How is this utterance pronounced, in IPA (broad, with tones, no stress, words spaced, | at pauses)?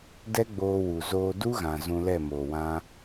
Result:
dɛ˦ɡ͡boː˧wu˨ zoː˧ du˦ɣã˨ zũ˧lɛ˦˨moː˨ wã˧